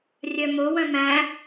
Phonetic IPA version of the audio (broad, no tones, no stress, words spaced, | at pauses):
rʲœmo wœ̃mæ̃